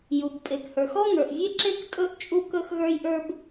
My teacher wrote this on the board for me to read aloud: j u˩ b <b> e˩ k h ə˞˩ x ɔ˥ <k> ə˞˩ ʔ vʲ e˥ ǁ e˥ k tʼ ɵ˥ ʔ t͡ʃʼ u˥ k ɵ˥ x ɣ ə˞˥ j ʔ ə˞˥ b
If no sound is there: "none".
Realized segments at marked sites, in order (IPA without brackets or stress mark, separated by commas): pʼ, ŋ